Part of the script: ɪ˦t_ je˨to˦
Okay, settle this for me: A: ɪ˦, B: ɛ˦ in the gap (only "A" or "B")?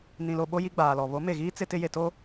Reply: A